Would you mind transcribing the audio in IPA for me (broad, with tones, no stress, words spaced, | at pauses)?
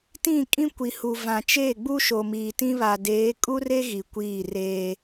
tĩ˦˨ kʼĩ˦kʷi˨hu˨ vã˨t͡ʃe˦˨ɡ͡bu˦ ʃo˨miː˨tĩ˦βa˨ deː˨˦kʼu˦re˦ ɣi˨kʷiː˦˨reː˦